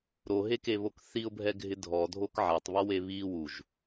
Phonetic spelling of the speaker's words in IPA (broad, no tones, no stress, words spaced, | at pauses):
ɾoɦekeβok θiʊ̯bʱɛɡʱɪ dʱɔdʱok ʕatˤβɔwe βi wuʒ